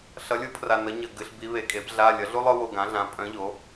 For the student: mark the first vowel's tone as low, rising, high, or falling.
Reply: rising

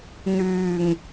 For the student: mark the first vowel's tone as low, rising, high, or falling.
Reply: low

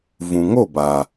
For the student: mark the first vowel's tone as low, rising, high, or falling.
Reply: low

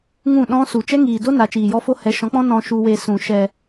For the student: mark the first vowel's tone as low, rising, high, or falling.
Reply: falling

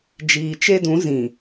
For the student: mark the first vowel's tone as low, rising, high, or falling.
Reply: low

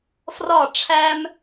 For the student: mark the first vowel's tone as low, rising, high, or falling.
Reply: falling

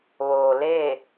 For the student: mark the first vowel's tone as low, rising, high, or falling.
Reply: low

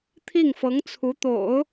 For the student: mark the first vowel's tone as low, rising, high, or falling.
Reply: falling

